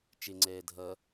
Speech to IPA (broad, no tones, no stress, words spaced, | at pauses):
t͡ʃɪŋ͡ǀɛː dʱʌ